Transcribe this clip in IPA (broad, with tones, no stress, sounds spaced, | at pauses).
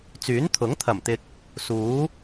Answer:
t͡s yː˨˥ n t̪ʰ ʊ˨˥ ŋ t̪ʰ ɐ˨˩ m t̪ ɪ˨ k̚ | s uː˨˥